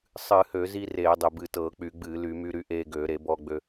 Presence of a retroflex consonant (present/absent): absent